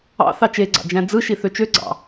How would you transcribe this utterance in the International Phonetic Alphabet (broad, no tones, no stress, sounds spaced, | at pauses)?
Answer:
ɑ̰ θ ɑ t͡ʃ e ɡ͡ǀ ɑ̰ d͡ʒ æ̃ d͡z ɯ ʃ i θ ø t͡ʃ ø ɡ͡ǀ ɑ̰